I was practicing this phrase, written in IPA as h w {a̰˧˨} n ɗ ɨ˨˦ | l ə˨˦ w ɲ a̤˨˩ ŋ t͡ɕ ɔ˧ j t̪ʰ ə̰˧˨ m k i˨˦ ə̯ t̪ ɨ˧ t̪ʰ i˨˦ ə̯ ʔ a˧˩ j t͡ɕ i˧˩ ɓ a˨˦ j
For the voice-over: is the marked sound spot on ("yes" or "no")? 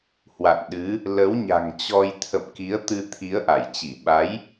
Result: yes